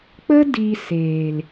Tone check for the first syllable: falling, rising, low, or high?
high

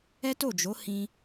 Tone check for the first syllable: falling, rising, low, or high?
high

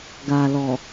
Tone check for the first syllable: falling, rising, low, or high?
low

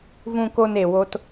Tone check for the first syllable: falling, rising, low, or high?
low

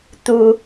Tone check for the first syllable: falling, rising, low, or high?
low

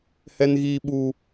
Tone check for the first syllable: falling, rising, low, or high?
high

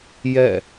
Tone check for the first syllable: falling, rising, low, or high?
falling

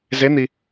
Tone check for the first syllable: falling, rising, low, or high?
rising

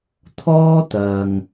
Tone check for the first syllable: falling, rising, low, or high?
high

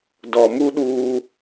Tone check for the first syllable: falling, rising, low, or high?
low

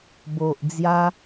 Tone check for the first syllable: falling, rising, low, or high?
low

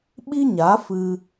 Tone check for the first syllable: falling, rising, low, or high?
high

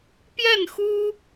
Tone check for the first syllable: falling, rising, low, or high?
falling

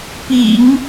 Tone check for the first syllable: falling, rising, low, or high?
low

